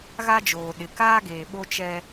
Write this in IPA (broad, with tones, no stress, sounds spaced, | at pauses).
ɣ a˦ d͡ʒ oː˨ ɗ ɪ˨ k aː˦ ɡ eː˨ ɓ o˦ t͡ʃ ɛ˦